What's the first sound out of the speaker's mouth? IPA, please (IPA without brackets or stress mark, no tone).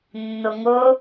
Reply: nː